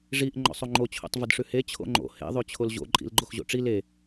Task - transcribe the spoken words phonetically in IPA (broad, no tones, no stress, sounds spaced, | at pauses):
ʐ i ʔ ŋ͡ǃ ɔ̰ sˤ o ŋ͡ǃ o t͡ɕʰ o̰ tˤ v ə d ʂ ʉ h e t͡ɕʰ o̰ ŋ͡ǃ o̰ h ḛ ðˤ ʉ t͡ɕʰ o l ʑ o̰ ǃʼ ḭ l ɡ͡ǃ o x ʑ o̰ ʈ͡ʂ i l e